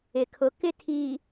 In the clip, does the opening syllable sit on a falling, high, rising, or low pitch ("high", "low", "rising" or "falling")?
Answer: low